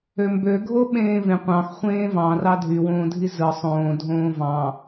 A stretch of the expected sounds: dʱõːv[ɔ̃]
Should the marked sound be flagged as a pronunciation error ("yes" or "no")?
yes